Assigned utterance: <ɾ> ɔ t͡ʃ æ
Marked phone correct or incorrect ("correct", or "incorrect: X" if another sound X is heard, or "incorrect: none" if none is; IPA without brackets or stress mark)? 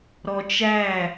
correct